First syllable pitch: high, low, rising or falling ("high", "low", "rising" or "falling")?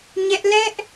high